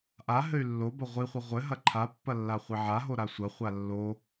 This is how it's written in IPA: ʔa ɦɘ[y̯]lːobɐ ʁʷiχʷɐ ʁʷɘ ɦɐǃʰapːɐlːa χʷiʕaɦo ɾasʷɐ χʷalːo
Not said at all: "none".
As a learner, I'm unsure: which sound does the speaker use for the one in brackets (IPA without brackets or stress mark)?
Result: y̯